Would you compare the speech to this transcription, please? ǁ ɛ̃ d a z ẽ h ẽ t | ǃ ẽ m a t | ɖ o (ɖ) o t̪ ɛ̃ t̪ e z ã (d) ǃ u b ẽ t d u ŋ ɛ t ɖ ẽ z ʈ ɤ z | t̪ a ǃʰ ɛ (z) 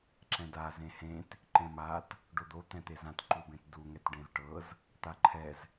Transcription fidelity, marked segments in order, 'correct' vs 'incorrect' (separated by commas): incorrect, incorrect, correct